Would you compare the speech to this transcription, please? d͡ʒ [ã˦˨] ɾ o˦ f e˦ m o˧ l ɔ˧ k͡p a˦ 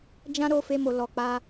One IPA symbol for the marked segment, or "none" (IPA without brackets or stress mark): ã˦